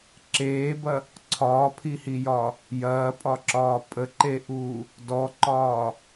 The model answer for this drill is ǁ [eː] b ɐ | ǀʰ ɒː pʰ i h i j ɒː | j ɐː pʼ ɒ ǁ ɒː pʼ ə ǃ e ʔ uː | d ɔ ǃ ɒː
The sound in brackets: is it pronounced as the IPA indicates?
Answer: yes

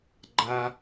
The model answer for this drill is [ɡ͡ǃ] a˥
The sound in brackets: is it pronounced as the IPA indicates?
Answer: yes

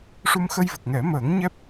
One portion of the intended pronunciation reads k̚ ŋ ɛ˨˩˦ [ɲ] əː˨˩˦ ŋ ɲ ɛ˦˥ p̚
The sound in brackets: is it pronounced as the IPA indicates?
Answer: no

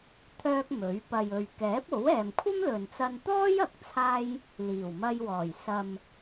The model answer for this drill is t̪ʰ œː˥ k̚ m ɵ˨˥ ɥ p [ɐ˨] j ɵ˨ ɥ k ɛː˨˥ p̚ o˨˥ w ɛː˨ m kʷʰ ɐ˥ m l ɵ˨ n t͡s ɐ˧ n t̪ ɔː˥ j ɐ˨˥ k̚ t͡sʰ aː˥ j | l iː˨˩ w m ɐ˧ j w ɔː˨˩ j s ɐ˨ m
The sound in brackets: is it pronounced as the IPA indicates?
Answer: yes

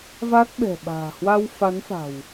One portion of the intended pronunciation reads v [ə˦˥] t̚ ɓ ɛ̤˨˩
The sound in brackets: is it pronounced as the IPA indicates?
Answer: no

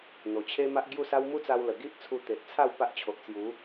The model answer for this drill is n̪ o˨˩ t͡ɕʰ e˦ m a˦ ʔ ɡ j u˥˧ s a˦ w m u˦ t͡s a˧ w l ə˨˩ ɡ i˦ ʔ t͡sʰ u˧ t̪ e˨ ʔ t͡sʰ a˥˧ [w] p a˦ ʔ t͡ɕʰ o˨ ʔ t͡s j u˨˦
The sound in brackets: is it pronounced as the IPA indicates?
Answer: yes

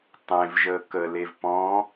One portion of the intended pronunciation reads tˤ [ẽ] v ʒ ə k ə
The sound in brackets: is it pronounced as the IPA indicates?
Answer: yes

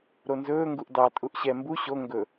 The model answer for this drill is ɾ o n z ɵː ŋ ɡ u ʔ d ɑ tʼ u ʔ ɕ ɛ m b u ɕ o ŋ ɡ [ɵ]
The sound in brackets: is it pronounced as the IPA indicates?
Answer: yes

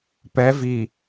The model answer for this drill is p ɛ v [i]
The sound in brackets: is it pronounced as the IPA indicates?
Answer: yes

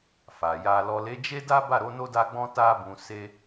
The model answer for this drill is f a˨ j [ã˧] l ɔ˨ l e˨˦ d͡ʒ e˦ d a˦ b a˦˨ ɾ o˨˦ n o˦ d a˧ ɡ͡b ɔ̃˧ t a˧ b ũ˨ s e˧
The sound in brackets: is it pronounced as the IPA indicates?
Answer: no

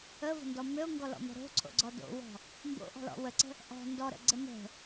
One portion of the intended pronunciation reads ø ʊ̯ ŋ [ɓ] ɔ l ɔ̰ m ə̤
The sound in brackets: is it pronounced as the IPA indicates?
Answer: no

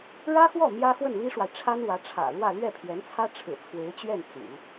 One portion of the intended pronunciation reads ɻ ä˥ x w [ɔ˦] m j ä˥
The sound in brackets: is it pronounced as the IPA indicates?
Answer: no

